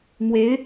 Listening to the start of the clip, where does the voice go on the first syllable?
rising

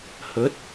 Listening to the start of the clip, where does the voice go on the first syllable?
rising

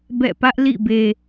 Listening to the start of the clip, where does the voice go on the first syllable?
falling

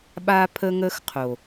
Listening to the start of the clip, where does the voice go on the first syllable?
high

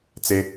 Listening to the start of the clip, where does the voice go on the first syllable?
high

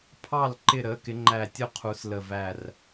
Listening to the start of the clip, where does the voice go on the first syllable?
falling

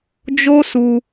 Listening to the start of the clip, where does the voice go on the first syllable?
high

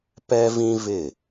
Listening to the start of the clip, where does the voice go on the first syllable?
high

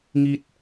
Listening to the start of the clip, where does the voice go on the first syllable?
high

